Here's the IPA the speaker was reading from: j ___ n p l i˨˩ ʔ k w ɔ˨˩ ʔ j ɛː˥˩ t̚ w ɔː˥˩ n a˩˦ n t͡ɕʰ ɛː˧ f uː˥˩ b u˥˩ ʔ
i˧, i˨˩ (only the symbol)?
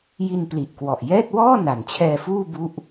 i˧